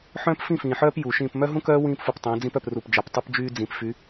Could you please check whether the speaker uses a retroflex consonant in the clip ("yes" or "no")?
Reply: no